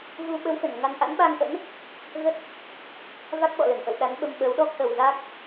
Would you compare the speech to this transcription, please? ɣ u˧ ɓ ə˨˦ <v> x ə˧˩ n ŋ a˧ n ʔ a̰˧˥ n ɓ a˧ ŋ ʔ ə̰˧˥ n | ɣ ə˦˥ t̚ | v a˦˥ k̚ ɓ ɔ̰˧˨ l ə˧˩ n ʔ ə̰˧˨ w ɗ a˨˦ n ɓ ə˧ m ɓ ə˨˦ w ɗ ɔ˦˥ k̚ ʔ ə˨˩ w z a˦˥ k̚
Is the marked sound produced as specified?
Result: no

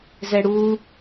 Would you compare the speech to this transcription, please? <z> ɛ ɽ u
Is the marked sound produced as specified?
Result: yes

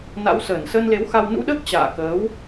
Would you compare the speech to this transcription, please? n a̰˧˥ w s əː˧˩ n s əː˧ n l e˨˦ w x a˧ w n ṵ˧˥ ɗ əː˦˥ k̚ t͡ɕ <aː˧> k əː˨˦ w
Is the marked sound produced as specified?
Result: no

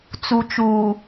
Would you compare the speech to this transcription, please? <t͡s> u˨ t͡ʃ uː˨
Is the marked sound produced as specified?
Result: yes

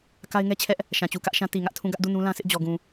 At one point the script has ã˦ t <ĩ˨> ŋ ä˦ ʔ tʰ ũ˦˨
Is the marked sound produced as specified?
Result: no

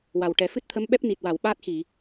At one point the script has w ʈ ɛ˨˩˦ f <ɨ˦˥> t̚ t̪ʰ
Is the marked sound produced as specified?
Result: yes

